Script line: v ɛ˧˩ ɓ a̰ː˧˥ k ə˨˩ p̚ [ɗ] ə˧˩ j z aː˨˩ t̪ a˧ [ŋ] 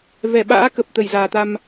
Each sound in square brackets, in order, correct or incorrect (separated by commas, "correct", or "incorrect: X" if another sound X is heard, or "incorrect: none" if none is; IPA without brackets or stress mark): incorrect: t̪, incorrect: m